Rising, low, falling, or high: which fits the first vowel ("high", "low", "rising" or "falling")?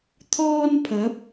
high